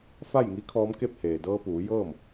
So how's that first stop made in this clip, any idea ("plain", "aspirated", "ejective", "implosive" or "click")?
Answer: aspirated